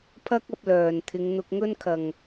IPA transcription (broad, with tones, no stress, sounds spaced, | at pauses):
pʰ ɐ˥ k̚ ɐ˧ p̚ l œː˨˩ n t̪ʰ ɪ˨˧ ŋ n̪ ʊ˧ k̚ ŋ ɵ˥ n kʰ ɐ˨˩ ŋ